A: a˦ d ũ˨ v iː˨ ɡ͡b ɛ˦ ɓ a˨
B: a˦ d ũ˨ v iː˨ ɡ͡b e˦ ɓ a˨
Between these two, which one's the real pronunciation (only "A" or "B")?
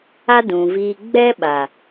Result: A